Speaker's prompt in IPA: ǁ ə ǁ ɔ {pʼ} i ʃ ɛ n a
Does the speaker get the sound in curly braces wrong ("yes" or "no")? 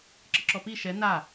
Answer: yes